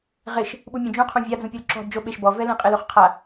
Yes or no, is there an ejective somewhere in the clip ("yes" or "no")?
yes